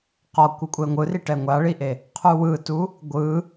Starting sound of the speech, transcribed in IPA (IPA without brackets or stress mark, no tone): q